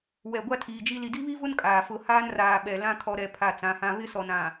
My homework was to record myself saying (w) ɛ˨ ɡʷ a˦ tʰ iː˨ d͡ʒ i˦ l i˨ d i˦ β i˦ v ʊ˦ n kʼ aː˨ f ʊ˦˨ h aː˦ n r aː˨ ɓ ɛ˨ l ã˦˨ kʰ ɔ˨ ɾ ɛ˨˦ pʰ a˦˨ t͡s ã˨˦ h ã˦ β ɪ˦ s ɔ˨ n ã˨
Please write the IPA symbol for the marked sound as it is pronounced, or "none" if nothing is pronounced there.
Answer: w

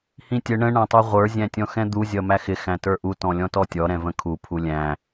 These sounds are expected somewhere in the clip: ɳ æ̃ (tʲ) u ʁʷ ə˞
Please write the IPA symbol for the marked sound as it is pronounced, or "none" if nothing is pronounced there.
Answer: tˤ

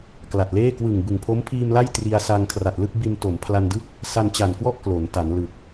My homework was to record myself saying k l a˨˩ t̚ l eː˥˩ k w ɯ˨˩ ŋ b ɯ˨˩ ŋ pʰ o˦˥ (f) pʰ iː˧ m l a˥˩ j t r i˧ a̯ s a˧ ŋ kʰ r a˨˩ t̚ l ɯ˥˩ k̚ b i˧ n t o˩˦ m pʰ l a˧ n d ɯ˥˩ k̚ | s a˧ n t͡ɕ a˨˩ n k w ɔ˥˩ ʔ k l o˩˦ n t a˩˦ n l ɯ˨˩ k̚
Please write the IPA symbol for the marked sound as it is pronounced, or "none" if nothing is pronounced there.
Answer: m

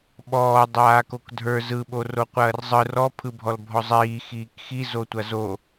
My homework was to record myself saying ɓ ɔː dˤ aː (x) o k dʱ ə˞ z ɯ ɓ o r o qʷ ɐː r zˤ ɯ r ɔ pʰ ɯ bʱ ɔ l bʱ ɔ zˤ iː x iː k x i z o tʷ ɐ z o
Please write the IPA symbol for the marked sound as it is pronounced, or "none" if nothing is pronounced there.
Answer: k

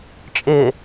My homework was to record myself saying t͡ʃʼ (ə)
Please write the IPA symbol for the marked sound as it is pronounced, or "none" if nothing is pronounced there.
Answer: ɪ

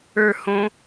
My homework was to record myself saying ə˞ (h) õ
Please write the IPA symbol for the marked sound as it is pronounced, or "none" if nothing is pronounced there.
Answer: h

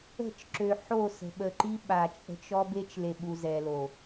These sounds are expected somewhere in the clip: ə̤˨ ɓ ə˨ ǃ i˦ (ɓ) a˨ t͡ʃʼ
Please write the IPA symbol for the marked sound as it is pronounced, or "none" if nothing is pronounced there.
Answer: ɓ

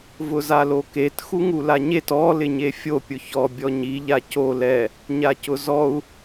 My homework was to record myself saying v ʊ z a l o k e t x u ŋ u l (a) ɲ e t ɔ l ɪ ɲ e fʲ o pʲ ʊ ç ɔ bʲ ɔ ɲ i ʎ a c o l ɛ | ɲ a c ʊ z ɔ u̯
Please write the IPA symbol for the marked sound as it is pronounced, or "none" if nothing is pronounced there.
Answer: a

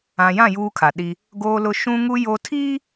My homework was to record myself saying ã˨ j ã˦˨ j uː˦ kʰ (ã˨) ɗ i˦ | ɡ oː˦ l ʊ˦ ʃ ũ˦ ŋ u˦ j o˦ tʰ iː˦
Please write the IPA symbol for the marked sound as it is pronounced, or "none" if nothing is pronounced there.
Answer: a˨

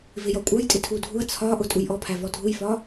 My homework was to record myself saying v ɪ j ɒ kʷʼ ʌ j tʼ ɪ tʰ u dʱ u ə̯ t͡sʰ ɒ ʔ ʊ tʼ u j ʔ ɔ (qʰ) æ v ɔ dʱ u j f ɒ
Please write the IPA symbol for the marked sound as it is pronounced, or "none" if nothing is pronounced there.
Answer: pʰ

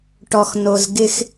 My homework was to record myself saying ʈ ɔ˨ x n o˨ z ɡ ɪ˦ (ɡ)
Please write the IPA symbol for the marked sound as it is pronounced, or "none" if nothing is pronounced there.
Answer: x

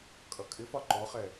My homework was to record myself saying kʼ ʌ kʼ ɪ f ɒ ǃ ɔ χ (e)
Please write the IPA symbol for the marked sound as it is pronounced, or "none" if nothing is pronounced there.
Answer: ɛ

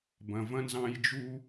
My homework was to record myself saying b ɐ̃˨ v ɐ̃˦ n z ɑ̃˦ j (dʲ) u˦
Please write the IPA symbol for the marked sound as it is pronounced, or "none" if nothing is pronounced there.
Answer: d͡ʒ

